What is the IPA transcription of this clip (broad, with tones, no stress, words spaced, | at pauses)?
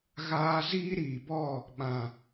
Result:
ɣaː˧ ziː˦ɾiː˨bɔ˦˨ | ɓã˨